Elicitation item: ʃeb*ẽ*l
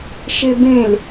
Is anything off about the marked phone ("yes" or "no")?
no